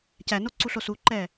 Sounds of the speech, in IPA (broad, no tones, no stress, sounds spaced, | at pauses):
c æ n o ǀ u ɬ o s u ǃ ɛ